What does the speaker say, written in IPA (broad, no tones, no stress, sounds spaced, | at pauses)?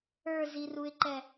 ə˞ z i r u ɪ̯ ǃ ɛ